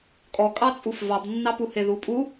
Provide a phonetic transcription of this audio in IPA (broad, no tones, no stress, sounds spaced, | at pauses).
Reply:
kʼ ɔ kʼ ɑ t͡sʼ u f v ɑ b nː ɑ p u h e ð u pʼ u